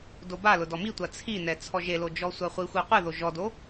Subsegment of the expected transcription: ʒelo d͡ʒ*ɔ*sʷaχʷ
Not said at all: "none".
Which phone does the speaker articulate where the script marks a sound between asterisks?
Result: ɔ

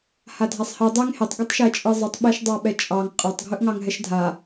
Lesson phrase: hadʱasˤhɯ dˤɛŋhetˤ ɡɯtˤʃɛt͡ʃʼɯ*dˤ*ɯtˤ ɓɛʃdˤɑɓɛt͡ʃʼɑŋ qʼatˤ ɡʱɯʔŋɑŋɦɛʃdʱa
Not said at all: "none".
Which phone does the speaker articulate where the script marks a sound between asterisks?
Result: zˤ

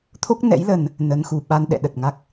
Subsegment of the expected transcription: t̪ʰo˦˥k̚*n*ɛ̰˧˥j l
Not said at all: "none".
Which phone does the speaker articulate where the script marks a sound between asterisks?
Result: n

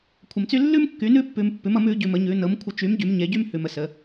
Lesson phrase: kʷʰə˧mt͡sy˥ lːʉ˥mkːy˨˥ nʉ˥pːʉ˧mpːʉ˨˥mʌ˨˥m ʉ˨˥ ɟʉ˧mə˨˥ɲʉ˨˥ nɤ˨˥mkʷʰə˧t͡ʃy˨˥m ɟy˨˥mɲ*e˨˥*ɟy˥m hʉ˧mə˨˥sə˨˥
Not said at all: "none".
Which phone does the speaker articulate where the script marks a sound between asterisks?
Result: e˨˥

